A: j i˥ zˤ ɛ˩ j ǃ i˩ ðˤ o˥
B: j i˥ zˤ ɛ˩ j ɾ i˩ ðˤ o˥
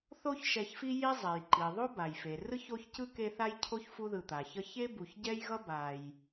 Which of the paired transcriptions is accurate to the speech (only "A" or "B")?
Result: A